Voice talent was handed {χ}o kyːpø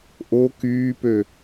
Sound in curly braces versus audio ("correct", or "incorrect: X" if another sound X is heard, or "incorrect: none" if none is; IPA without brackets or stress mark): incorrect: ʔ